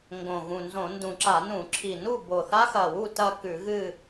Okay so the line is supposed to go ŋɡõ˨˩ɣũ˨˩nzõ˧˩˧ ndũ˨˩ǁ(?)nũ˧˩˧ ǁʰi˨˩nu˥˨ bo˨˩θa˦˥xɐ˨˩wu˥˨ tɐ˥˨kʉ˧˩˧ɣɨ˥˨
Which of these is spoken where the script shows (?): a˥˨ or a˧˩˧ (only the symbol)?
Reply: a˧˩˧